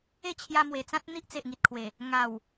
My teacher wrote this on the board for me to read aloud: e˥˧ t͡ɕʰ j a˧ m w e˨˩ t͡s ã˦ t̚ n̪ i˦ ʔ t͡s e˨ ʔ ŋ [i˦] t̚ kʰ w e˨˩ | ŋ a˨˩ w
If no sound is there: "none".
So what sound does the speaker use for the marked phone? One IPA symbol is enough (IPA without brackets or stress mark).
i˨